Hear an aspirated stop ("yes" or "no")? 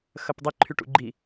yes